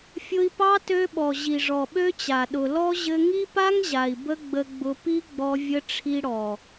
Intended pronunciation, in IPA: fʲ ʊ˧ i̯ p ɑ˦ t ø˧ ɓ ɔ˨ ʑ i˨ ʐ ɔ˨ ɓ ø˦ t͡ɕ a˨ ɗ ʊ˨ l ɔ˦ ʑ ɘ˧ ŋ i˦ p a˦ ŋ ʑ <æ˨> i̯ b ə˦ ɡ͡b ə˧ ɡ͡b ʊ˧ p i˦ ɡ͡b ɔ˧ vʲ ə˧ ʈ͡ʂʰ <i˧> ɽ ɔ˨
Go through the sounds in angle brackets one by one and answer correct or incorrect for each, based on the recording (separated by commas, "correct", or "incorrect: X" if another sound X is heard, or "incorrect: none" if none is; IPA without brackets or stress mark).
incorrect: a˨, correct